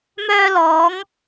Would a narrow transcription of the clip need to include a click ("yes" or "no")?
no